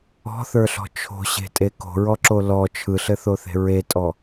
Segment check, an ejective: present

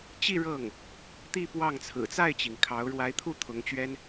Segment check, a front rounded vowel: absent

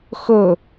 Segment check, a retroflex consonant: absent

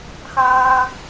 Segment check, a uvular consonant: absent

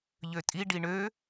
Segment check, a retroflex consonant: present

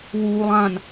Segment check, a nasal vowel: present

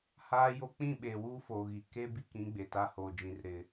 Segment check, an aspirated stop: absent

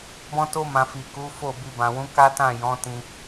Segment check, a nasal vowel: present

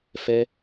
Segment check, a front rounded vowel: absent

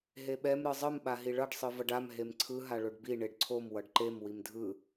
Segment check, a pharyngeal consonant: absent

